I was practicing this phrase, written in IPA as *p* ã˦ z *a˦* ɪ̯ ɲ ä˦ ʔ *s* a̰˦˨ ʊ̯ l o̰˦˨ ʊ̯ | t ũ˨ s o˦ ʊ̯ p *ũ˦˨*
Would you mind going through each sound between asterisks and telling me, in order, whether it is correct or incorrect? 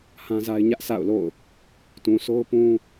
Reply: incorrect: h, correct, correct, incorrect: ũ˦

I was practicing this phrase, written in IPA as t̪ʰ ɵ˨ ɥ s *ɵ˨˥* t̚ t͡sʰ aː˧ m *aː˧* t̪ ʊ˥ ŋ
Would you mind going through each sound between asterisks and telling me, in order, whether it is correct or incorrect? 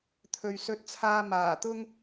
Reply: correct, incorrect: aː˨˩

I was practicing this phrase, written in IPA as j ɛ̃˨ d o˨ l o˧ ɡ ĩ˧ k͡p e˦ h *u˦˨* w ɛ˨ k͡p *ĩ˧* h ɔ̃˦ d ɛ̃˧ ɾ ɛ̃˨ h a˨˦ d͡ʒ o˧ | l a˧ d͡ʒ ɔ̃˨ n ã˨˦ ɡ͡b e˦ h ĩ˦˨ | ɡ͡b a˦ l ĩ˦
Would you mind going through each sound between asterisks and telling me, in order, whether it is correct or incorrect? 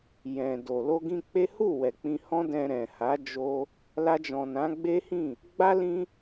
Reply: correct, correct

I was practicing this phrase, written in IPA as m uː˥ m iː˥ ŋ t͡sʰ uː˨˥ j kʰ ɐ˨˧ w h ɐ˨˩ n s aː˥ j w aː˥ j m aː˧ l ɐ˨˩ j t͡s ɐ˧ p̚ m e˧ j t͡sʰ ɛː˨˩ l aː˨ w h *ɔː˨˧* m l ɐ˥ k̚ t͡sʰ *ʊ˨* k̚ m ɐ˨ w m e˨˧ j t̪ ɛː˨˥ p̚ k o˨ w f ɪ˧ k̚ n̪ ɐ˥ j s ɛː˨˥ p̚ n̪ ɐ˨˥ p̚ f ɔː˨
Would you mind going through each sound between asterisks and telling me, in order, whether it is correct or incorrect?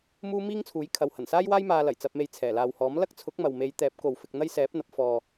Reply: incorrect: ɔː˨˥, incorrect: ʊ˨˥

